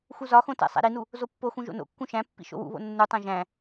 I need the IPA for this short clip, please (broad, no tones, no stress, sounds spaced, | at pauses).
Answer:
x u z ɒ x õ t æ̰ sˤ æ̰ ɾ i n u | z o pː o x ũ ʒ o̰ n o̰ kː ũ ʃ æ̃ pː ḭ ʃ o̰ w ṵ β o̰ nː u tˤ æ̃ ʒ æ̃